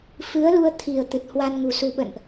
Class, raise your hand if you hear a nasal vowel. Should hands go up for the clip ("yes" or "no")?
no